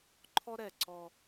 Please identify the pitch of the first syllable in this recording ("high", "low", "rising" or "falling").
high